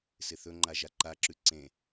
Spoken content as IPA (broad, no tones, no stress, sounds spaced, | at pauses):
s ɪ θ ɵ ŋ͡ǃ a ʒ a ǃ a ǁ ʉ ǀ ẽ